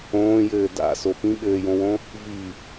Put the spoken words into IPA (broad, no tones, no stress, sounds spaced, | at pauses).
õː j ɘː d a̰ s o p ĩ ɠ ɘː j õ w õ | v i